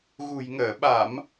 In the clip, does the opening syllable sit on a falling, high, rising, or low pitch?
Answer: low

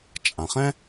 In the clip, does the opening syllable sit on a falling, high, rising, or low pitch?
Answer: low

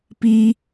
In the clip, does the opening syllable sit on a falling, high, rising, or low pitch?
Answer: high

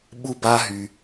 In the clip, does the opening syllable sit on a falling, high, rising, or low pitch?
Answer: high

